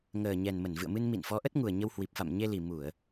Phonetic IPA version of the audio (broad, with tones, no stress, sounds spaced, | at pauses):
ŋ əː˨˩ ɲ ɛ˨˩ n m ə˧˩ n v ɨ̰˧˨ ə̯ m ɨ˧ n m ḭ˧˨ n f ɔ˨˦ ʔ ə˦˥ t̚ ŋ u˨˩ ə̯ ɲ ə˧ w h w i˨˩ p̚ f a̰˧˨ m ɲ e˧ l i˨˩ m u˧˩˨ ə̯